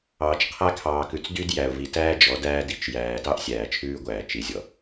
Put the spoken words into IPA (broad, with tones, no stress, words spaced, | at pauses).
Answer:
ɑː˨t͡ʃqʰæ˦kʰɑː˨kʉ˨t͡s dy˦d jæ˨ʊ̯vi˨tæː˦ d͡ʒɔ˨˦dæː˦di˨t͡ʃ jæː˨tɑ˦ʔ sʲæː˨t͡ʃʰʉː˦ɡʷæː˨ t͡ʃi˨zʲɔ˨